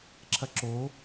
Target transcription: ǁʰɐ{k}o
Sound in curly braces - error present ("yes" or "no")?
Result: yes